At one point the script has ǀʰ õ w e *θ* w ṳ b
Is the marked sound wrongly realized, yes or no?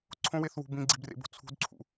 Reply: no